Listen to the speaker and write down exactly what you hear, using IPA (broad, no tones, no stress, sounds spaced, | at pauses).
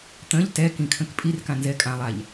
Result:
t̪ ə̃ ʎ t ɛ k ĩ kʰ ə̃ k pʼ i r k ã n z ɛ kʼ ã lˠ a ʎ